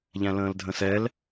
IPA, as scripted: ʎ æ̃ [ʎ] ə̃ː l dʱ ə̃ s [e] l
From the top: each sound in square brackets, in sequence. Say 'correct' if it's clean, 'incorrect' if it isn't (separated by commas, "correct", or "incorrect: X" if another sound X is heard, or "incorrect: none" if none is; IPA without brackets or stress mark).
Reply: incorrect: l, incorrect: ɛ